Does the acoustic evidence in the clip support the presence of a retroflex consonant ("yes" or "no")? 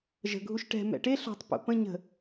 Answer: yes